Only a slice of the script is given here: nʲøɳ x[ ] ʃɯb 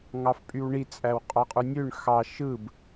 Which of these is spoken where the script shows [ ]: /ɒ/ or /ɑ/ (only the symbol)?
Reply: ɑ